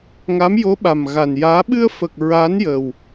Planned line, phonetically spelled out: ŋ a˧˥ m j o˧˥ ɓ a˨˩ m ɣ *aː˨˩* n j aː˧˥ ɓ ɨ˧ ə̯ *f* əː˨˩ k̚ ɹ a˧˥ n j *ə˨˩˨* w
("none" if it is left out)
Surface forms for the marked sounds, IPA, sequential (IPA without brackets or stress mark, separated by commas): a˨˩, f, ə˨˩